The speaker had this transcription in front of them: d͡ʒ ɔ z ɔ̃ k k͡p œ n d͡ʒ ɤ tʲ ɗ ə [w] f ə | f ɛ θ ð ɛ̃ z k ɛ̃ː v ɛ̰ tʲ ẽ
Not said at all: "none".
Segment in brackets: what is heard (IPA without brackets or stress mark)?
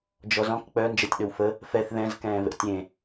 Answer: w